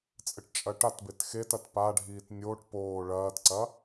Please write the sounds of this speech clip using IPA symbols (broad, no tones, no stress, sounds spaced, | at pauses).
t͡sʼ ɘ ʈ t͡ʃʼ ɐ ʈ a t b e t x e t ɐ t p a ɖʱ iː t nʲ o ʈ p oː ɭ ɐː t ǀ ɐ